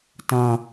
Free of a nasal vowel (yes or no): no